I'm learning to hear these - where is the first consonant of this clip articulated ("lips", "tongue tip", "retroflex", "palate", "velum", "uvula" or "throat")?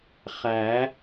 uvula